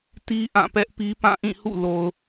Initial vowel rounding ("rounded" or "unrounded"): unrounded